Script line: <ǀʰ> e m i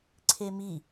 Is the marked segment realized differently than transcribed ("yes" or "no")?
no